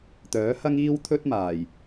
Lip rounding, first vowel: rounded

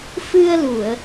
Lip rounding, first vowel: unrounded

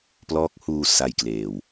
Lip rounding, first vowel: rounded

